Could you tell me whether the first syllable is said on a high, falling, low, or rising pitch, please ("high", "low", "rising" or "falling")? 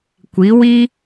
rising